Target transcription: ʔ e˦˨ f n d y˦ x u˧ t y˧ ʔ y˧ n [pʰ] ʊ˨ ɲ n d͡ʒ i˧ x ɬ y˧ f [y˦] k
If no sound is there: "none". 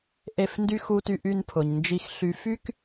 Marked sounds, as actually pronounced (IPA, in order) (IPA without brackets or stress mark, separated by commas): pʰ, y˦